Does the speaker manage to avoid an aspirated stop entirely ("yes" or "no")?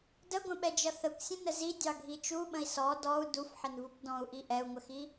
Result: yes